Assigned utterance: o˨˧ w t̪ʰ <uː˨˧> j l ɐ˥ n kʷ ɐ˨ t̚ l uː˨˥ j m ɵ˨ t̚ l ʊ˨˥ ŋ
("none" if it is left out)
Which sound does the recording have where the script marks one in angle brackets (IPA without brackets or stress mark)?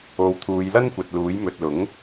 uː˨˧